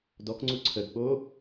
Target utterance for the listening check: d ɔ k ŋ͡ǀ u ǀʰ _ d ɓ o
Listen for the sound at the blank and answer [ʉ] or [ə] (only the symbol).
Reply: ə